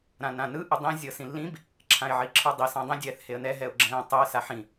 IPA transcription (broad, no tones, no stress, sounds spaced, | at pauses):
ɾ ã n ã n ɯ ʔ ɯ dˤ ĩ zʲ ɤ s ĩ lː ĩ b | ǁʰ ã ɪ̯ ʕ i ǁʰ ɯ dˤ i s ã dˤ ĩ dʲ ɛː θ h e ə̯ n ɛ ɦ ɛ ʊ̯ ɡ͡ǁ ɛ̃ː tˤ ɯ ə̯ s a ħ ĩ